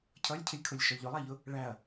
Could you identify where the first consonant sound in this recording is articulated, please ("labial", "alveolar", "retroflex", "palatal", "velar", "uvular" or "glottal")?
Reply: palatal